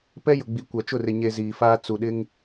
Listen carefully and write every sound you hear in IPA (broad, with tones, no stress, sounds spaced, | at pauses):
p ɛ˦ j ʊ˨ ɡ͡b i˨ kʷ a˨ t͡ʃ ʊ˦˨ r ɪ˨ ɲ e˨ z iː˨ f aː˦ t͡s u˨ ɗ ɪ˦ ŋ